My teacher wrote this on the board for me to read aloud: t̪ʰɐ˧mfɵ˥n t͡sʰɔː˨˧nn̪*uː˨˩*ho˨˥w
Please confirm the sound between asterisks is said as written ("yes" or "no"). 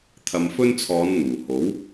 yes